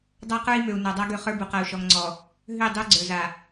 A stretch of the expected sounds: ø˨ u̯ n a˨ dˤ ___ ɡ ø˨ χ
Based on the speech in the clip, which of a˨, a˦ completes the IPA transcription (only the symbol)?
a˦